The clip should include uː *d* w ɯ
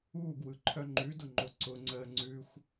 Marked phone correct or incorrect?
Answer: incorrect